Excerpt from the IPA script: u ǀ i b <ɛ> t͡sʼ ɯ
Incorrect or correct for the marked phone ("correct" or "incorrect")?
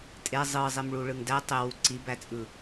incorrect